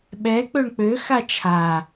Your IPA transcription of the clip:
ɓ ɛ k͡p ø ɳ k͡p ø x a t͡ʃʰ a

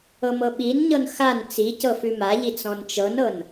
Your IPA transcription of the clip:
ɤ m ɤ ɓ i n ɲ ɤ n x a n t͡s i c ɤ f ʉ m a ʎ i t͡s ɔ̃ n t͡ʃ ɤ n ɤ n

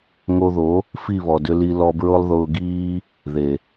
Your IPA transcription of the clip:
ŋ o˧ ð o˨˦ | f i˦˨ β ɔ˨ d ʏ˧ l i˧ l ɔ˧ b ɹ ʊ˦ lˠ ð ʊː˧ ɡ iː˦ | ð e˨

